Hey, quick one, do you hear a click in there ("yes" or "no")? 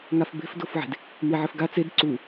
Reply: yes